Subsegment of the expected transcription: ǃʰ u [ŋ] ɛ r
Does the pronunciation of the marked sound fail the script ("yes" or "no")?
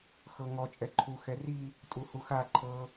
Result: yes